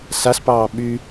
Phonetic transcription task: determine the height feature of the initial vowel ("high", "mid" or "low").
low